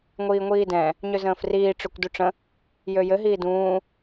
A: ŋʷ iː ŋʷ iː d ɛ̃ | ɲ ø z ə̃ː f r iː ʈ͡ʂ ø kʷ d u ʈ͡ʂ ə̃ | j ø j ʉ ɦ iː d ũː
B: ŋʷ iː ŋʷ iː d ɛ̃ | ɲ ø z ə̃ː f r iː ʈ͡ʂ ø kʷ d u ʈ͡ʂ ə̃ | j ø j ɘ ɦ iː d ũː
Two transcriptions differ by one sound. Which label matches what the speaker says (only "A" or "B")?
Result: B